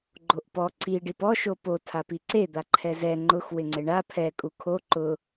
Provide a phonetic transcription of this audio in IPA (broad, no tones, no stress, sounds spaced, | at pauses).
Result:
ɡ͡ǃ o ʔ p ɔ ǀ i ɖ i p ɔ ʃ o p o tʰ a p i ǀ e d̪ a ǃʰ ɛ z ɛ ŋ͡ǃ ʊ x w ɪ ŋ͡ǀ ɪ ɳ a pʰ ɛ kʼ u kʰ o ǃ ʊ